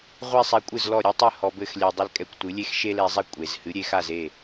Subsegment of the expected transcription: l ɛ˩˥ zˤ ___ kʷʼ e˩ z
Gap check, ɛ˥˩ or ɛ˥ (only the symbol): ɛ˥